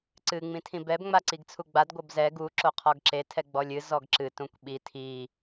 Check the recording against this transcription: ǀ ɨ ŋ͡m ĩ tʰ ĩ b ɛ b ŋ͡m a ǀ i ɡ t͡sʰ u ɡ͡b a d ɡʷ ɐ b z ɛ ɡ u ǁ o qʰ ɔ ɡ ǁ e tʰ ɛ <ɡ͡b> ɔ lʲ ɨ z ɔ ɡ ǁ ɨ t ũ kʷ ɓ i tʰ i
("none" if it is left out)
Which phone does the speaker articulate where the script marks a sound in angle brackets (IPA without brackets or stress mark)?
ɡ͡b